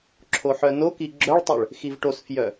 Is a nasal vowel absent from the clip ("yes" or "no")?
yes